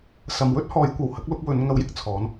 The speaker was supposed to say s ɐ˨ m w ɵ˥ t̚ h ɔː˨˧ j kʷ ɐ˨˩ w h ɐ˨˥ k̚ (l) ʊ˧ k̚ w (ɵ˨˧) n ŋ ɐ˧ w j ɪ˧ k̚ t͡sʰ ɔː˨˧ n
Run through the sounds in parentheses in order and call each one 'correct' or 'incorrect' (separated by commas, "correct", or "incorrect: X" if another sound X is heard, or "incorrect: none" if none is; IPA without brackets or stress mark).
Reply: correct, correct